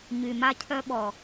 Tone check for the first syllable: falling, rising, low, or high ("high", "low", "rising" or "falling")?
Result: low